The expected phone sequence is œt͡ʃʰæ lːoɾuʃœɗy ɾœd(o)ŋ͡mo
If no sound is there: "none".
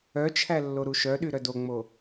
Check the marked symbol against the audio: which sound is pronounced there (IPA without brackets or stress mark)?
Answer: o